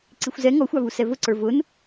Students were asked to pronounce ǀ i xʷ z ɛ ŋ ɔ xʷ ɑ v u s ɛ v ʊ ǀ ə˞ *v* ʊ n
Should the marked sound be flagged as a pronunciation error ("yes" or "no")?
no